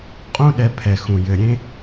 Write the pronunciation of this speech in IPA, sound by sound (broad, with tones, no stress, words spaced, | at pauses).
qʼũ˦ ɗɛ˧pʰɛ˨xũ˨ jɘ˨ ɾʲẽ˦